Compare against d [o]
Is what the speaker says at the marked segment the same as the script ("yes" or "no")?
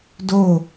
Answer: yes